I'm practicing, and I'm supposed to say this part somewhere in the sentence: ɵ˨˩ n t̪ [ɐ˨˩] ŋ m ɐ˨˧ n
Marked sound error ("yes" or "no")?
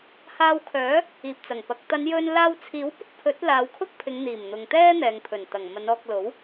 no